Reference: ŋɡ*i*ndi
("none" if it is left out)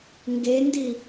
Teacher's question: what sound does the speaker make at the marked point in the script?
e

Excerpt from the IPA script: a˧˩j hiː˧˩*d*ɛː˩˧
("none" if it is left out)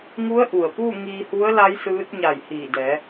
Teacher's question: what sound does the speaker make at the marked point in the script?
d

